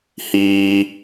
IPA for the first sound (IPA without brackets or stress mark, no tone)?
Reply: h